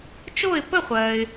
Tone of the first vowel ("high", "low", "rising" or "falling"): falling